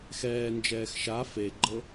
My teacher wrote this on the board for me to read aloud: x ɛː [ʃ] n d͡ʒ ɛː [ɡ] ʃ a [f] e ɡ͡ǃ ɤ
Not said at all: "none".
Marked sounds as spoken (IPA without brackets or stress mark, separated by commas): none, x, f